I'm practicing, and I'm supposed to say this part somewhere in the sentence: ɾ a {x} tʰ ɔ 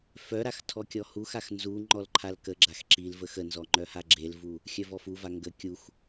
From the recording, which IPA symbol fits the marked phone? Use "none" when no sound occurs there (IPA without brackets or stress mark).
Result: x